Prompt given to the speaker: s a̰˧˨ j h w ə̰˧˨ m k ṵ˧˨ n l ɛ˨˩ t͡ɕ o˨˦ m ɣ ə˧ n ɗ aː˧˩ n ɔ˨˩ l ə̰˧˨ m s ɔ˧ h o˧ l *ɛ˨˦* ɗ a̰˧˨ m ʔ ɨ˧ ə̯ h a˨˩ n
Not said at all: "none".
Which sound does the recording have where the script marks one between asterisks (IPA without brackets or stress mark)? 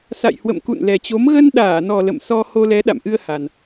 ɛ˨˦